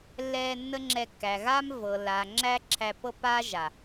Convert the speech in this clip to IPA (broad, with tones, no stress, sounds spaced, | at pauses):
lː ɛː˧ nː ə˦ ŋ͡ǁ ɛ˧ kː æ˨ ɣ a˦ m v ɤ˨ lː aː˨ ŋ͡ǁ æ˦ ǁʰ æ˧ pː ɤ˦ pː aː˦ ʒ a˨